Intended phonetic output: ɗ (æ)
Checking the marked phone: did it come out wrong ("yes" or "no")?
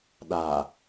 yes